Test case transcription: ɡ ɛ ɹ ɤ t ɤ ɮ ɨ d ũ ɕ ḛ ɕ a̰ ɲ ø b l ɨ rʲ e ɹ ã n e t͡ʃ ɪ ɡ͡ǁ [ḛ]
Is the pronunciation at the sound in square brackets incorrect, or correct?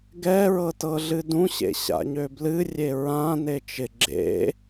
correct